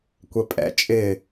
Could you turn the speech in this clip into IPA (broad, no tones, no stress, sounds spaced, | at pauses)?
kʷ ɛ pʼ ɛ̰ t͡ʃʼ ɪ